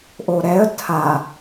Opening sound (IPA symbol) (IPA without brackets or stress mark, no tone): ʔ